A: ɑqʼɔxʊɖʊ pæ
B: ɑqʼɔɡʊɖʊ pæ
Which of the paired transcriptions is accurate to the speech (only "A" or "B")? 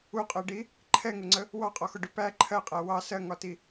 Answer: A